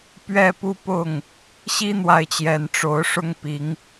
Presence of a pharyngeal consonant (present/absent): absent